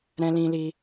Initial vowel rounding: unrounded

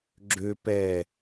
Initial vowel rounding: rounded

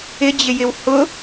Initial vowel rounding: unrounded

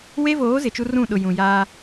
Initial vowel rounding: unrounded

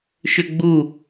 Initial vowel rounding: rounded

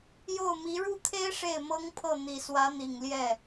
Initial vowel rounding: rounded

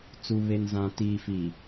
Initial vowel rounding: rounded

